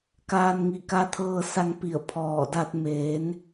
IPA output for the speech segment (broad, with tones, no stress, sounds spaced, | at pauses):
k aː˧ n ŋ i˧˩ k a˧ t̪ʰ ɤː˧ s a˧ ŋ p i˧˩ ə̯ pʰ ɔː˧˩ d a˧ t̚ m eː˩˧ n